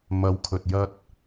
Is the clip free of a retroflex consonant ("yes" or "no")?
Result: yes